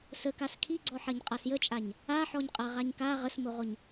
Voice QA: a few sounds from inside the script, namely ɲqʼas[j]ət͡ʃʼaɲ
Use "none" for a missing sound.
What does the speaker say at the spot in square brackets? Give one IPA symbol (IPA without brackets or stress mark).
j